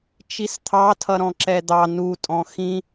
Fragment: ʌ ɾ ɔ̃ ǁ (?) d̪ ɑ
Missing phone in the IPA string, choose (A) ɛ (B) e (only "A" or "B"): A